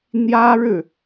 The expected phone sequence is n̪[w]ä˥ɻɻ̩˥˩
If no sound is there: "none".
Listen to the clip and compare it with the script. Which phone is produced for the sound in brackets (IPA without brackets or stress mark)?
j